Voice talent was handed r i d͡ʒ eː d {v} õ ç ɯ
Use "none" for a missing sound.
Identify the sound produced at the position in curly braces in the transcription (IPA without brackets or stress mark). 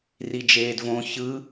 v